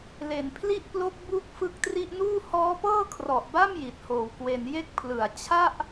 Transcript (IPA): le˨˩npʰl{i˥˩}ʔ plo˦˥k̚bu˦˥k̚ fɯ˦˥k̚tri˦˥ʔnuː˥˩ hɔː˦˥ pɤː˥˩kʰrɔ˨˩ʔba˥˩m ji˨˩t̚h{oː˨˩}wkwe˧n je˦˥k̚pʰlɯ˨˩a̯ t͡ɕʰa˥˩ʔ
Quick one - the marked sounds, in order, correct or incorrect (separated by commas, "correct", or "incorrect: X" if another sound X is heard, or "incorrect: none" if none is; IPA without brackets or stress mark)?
correct, correct